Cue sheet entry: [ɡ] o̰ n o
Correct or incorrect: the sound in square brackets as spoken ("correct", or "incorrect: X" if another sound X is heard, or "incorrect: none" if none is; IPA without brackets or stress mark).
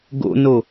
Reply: correct